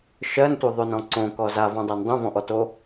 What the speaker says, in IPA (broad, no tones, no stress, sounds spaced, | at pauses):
ʃ ɜ n tʷ ə˞ ðˤ o n ɔ̃ ǀ õ k ɔ z a v ɔ̃ dˤ a n dˤ õ v ɔ̃ ʔ ɔ t o